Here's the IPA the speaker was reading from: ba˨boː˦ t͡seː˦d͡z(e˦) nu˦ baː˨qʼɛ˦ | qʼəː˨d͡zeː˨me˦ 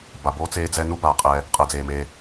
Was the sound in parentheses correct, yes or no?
no